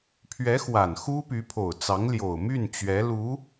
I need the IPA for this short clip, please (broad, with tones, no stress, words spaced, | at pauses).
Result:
pʰɥɛ˧˥xwa˨˩n xu˥py˧˥pʰo˨˩ʊ̯t͡sɑ˧˥ŋ ljo˨˩ʊ̯my˥˩nt͡ɕɥɛ˧˥ lu˧˥